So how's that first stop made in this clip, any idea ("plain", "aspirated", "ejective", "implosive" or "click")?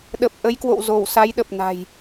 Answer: implosive